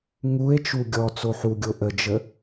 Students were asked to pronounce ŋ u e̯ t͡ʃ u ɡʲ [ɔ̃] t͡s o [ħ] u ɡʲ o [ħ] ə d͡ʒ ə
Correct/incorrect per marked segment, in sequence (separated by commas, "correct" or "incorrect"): incorrect, correct, incorrect